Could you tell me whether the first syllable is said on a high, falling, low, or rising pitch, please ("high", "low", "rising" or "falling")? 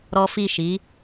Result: high